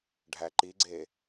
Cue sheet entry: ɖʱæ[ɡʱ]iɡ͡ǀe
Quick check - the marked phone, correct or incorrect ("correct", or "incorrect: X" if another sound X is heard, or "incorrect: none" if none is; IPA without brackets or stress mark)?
incorrect: ǃ